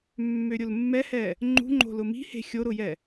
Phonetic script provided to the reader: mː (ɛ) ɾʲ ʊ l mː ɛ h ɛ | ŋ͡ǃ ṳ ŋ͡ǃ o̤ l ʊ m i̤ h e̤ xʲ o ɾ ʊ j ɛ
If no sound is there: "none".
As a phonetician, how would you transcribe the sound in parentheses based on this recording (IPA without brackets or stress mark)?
ø